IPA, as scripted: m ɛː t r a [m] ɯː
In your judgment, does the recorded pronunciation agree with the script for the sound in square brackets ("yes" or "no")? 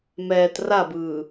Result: no